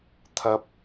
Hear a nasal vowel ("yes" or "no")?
no